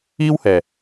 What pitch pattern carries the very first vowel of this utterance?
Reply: high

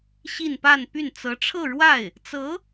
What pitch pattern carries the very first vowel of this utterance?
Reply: falling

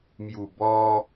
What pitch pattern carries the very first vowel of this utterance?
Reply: low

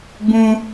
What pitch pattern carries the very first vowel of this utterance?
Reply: high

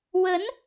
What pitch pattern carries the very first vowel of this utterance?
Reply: rising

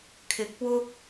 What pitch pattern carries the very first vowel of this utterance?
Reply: rising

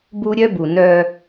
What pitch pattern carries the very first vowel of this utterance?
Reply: high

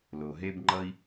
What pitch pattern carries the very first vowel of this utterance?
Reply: low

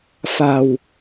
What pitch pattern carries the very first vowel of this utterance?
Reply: low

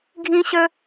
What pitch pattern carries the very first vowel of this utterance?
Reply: high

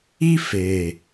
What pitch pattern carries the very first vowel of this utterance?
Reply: high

